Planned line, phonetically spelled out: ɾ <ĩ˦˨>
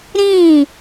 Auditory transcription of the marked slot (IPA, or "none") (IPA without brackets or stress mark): ĩ˦˨